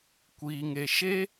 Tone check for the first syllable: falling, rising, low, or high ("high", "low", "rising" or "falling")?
low